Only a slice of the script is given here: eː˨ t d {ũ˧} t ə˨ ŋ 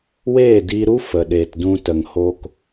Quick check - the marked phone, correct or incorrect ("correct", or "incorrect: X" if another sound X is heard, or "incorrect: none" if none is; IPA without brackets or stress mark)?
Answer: correct